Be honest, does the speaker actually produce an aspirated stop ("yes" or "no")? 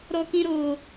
no